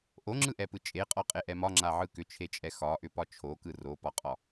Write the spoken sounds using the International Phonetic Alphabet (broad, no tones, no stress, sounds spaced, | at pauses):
ʔ o ŋ͡ǁ ɯ ʔ ɛ p ɯ t͡ʃʼ e qʼ ɒ qʼ e ʔ ɛ m ɒ ŋ͡ǁ a ʕ ɯ k ʏ t͡ʃʰ e t͡ʃʼ ɛ x ɒ ʔ ʏ p ɒ t͡ʃʰ o k ɯ r o p ɒ qʼ ɒ